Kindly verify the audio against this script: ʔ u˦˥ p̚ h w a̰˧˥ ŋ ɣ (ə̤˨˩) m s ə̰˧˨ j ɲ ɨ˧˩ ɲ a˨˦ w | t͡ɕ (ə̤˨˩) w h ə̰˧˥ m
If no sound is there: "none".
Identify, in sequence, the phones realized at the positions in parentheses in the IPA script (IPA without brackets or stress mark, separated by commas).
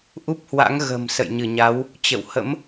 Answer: ə̤˨˩, ə̰˧˨